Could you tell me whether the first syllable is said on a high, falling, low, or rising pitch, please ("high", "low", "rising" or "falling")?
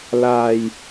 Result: low